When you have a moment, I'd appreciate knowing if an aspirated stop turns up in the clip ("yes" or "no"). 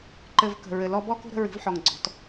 no